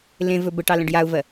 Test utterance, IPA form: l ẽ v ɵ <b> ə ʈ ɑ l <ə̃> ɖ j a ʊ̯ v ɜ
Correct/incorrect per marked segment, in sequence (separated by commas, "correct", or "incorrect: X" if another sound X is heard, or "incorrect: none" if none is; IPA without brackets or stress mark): correct, correct